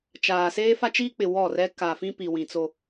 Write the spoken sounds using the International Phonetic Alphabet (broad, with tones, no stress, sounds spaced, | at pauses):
t͡ʃ aː˨ s eː˦ f a˦ t͡ʃ iː˦ k͡p ɪ˨ w ɔ˦˨ r ɛ˦ k a˨ f ĩ˦ p i˨ w ĩ˨ t͡s o˦